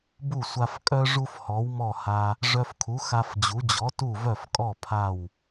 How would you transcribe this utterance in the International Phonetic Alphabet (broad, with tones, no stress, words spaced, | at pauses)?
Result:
bu˥˩sʷa˧fkʼœ˥ ʐu˥fhɔ˩˥wmɔ˥˩ha˧ | ʐœ˧fkʰu˩˥xa˧fd͡ʑu˩˥ d͡ʑɔ˩˥tu˥˩vœ˥˩fkʼɔ˥˩ pʰa˥˩w